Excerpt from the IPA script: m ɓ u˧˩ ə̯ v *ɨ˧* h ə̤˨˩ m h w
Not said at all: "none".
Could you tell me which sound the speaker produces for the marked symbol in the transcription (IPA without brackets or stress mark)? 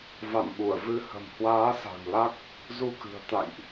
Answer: ɨ˧